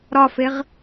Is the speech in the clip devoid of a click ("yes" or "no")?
yes